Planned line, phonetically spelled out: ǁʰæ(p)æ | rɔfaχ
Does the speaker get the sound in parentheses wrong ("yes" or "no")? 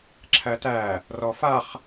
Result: yes